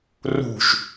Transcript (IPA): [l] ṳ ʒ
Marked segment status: incorrect: r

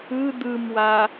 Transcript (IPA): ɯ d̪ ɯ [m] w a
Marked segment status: correct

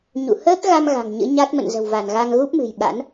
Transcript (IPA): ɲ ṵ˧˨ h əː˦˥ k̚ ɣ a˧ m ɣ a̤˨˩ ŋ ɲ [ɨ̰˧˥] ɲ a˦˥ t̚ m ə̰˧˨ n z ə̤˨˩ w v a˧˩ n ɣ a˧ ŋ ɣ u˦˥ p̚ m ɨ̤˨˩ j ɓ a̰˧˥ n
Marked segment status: correct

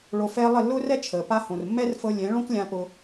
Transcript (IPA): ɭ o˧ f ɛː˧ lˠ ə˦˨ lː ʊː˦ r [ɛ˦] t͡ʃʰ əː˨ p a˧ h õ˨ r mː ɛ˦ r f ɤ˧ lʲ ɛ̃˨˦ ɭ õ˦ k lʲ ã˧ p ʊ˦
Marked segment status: correct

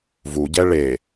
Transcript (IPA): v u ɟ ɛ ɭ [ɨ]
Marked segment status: incorrect: e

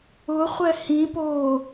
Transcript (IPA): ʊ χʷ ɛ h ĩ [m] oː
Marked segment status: incorrect: p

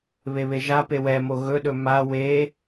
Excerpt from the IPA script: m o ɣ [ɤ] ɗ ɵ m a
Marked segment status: incorrect: ɵ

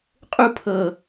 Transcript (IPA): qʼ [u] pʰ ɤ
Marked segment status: correct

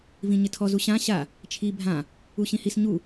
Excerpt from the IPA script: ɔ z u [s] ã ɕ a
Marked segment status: incorrect: ɕ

